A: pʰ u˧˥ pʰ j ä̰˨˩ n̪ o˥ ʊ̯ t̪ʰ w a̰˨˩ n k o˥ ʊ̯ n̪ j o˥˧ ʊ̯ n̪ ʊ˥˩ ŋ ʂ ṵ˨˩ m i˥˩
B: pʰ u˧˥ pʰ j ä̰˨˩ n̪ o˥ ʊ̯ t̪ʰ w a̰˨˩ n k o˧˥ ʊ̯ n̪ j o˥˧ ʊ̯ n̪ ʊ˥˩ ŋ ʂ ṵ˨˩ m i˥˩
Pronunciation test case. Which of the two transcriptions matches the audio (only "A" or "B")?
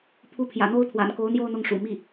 B